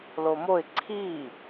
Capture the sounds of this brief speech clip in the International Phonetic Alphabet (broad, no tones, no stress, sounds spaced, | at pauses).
l o m o ɪ̯ ǀʰ iː